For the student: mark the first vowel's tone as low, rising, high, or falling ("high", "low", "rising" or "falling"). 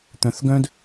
rising